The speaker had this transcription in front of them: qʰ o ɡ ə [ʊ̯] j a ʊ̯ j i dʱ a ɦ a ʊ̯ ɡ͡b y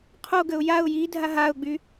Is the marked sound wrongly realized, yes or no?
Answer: no